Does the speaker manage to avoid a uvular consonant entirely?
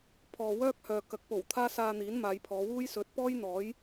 yes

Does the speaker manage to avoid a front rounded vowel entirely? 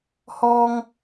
yes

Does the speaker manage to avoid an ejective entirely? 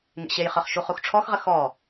yes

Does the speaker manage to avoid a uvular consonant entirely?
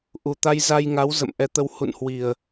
yes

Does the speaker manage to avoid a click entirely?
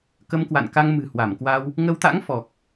yes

